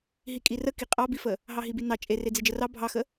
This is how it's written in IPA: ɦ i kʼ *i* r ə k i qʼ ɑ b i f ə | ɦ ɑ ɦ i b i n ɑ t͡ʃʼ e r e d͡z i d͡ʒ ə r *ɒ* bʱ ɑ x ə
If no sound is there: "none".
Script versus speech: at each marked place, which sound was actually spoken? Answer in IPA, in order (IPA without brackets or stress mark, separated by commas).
i, ɑ